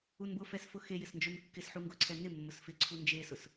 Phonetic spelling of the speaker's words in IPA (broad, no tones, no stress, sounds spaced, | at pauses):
u n b ʊ f ɛ s f ʊ x e j ɪ s n d͡ʒ o n kː ɪ s ħ u ŋ ɡ ʊ ǀʰ ɛ n ɪ mː ʊ s f ɪ ǀʰ u n d͡ʒ e s ʊ s